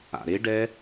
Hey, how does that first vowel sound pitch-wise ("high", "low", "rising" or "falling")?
low